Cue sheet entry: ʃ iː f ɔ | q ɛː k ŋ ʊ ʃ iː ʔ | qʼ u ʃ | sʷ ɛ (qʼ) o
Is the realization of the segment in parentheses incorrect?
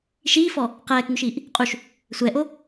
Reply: yes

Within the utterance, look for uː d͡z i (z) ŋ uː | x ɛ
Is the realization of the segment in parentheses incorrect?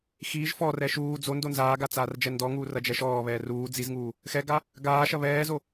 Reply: no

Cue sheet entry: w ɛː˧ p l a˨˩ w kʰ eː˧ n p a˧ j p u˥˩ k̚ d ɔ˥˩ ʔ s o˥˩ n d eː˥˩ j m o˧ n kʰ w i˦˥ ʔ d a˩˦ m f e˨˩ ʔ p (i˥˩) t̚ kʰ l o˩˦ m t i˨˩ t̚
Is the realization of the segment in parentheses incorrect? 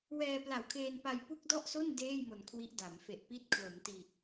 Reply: no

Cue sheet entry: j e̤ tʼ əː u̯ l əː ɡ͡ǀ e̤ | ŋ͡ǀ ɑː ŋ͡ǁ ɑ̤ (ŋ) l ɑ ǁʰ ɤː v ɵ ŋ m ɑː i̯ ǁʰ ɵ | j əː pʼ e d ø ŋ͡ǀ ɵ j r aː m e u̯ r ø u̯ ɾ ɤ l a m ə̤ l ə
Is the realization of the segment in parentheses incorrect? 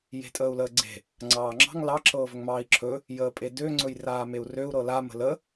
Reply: no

